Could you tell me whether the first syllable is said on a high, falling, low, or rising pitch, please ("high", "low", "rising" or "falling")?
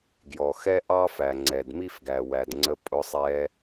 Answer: low